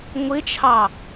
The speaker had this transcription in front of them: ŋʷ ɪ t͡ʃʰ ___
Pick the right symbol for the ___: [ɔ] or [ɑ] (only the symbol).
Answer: ɑ